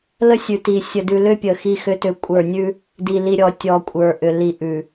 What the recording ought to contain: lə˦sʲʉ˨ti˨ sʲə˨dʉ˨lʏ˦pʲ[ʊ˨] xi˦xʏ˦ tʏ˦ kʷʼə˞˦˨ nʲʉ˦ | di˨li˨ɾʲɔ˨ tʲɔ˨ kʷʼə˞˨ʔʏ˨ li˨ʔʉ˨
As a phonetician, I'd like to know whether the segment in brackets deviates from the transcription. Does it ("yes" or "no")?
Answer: yes